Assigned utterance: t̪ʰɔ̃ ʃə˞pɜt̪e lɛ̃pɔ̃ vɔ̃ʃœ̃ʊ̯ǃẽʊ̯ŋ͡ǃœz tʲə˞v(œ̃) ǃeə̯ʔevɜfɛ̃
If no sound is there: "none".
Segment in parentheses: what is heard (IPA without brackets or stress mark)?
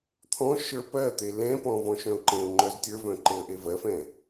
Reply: œ̃